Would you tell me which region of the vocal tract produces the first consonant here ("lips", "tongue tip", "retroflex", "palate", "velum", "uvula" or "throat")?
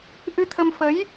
throat